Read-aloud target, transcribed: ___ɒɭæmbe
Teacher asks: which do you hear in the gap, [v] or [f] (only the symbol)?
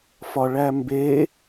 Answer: f